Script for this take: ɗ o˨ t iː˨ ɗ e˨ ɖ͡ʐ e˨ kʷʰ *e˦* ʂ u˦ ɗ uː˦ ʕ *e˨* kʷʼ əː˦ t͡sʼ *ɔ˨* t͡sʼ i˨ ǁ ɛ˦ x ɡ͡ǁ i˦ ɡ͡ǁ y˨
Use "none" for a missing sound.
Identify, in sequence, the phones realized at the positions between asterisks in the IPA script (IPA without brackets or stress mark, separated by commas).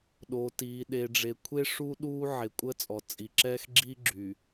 e˦, e˨, ɔ˨